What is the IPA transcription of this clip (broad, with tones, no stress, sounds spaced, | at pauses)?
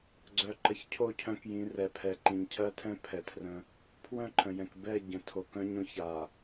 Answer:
ɡ͡ǀ œ˨ ǃ ə˨ ç cʰ o˦˨ cʰ œ̃˦ k j ĩ˨˦ r ɛ˨ pʰ ɛ˨ ǃ ĩ˨ ɲ cʰ ɜ˦ tʰ ɛ̃˦ pʰ ɛ˨ tʰ r ə̃˦ | pʰ w œ̃˦˨ ǃʰ ə̃˨ j ɛ̃˨ k b ɛ˦˨ ɟ ə̃˨ tʰ o˨ k œ̃˦ ɲ õ˦ ç a˨